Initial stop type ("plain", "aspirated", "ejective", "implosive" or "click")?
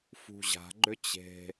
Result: click